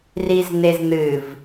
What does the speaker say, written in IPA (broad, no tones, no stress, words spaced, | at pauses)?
rizn̪ezn̪ɨv